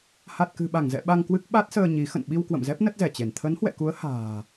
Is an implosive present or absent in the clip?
present